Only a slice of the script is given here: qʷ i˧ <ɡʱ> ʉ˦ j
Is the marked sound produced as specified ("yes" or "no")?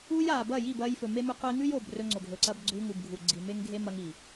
no